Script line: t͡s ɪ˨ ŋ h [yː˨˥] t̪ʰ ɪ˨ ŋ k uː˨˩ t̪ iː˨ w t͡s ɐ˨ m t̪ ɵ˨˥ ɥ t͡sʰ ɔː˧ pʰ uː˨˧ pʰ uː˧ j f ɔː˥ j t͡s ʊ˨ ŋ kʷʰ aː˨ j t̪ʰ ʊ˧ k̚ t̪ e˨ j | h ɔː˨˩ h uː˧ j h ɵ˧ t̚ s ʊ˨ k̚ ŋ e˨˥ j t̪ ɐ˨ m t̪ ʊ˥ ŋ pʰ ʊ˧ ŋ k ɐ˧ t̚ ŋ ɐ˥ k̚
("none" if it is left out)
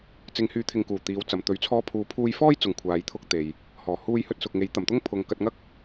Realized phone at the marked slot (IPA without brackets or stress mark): yː˨˥